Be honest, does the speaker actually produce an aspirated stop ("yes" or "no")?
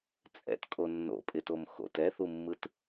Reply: no